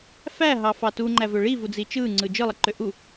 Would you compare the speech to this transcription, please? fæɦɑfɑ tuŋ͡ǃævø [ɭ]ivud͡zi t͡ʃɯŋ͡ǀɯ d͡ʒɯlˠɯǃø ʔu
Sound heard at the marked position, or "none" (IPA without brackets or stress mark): ɭ